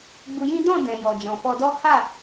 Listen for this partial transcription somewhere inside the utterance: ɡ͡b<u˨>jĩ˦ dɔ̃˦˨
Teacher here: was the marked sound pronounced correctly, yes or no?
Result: no